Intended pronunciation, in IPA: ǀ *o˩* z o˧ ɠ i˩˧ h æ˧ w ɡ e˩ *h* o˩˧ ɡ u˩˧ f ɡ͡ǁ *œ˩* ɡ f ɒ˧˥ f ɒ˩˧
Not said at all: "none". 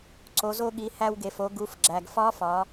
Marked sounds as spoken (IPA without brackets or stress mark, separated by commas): o˩˧, f, æ˩